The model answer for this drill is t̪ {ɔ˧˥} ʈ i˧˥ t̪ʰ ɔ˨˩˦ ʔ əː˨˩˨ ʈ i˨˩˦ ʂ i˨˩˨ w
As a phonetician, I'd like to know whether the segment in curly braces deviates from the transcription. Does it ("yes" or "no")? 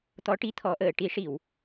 no